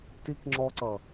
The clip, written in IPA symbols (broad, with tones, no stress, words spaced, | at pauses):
ti˧kŋ͡ǁɔ˧ǀʌ˨